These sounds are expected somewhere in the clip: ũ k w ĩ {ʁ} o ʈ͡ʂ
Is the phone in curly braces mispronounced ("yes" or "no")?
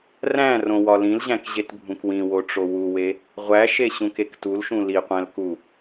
yes